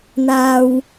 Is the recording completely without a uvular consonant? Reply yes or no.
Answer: yes